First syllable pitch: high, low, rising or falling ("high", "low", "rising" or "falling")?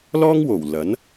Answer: high